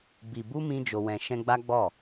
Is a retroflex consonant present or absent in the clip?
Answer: absent